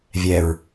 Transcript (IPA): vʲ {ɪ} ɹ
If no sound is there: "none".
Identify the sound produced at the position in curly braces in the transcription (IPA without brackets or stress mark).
ɛ